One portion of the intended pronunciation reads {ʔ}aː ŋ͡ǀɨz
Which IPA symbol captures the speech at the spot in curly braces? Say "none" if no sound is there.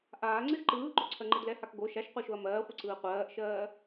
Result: ʔ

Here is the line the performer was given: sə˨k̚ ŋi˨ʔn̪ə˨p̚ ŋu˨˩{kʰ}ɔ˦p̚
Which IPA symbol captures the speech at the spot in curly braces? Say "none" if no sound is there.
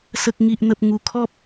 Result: kʰ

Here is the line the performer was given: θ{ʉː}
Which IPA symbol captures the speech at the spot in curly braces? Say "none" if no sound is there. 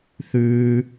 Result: ʉː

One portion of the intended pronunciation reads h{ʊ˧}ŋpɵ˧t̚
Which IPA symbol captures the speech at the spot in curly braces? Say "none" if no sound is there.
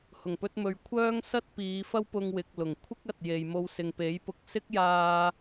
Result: ʊ˨˩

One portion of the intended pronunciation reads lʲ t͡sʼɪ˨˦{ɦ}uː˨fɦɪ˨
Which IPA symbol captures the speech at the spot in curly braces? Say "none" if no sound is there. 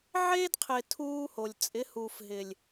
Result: h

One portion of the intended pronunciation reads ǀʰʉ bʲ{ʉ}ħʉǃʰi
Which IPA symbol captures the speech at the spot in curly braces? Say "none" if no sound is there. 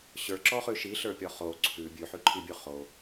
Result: ʉ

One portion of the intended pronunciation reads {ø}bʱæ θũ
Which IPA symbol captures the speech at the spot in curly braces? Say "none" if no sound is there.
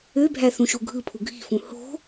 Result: ø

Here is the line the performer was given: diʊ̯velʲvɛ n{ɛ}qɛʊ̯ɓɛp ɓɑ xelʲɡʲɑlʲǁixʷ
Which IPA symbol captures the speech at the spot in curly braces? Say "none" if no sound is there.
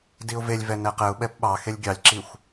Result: ɛ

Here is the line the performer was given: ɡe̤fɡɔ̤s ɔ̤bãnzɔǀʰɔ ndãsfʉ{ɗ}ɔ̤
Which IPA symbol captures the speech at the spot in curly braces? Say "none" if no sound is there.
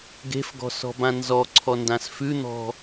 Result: n̪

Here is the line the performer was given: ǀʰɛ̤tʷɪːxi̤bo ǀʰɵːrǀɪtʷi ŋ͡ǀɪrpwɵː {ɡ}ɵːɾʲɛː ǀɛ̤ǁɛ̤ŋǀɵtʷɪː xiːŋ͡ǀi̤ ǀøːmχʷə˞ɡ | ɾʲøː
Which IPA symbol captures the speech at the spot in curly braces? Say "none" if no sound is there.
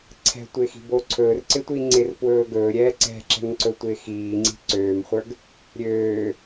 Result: ɡ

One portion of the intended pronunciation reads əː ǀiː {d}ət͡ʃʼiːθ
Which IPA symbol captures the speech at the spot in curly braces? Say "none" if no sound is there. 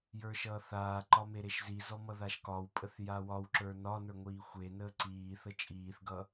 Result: θ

